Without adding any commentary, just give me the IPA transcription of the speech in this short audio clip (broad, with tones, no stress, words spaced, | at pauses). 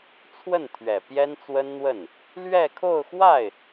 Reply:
t͡sʰwə˥˩n t̪ʰɥɛ˨˩pjɛ˥nt͡swə˥nn̪wə˥˩n | lɥɛ˥˧kʰo˥˧ʊ̯xwa˥˩ɪ̯